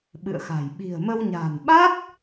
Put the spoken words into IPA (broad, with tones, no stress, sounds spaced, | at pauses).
ɓ ɨ̰˧˨ ə̯ x a̤˨˩ j ɓ i̤˨˩ ə̯ m ə˧ w ɲ a̤˨˩ n ɓ a˦˥ t̚